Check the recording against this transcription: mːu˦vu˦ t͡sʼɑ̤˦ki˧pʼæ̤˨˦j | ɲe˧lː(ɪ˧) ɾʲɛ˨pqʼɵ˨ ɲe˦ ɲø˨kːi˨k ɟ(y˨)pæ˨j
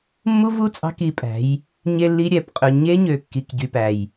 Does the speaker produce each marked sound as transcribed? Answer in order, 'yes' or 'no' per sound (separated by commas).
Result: no, yes